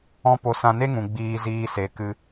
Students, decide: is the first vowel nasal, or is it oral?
nasal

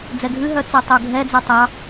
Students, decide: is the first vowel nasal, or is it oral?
oral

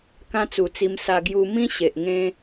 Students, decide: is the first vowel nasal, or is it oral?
nasal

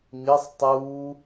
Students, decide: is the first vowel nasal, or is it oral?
oral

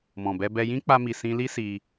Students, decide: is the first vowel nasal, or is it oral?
nasal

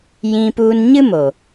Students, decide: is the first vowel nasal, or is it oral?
nasal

